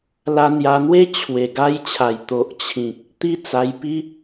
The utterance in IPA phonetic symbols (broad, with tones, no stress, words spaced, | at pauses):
la˧n̪ja˧n̪we˦ t͡ɕʰwe˨˩ɡa˦jt͡ɕʰa˨˩j t̪o˨ʔt͡ɕʰĩ˨k̚ | t̪i˦t͡sa˧jpi˦